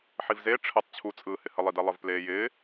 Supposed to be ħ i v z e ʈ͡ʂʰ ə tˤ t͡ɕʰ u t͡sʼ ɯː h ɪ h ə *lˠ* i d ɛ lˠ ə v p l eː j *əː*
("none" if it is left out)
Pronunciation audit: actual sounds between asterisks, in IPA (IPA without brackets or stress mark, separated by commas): lˠ, ɪː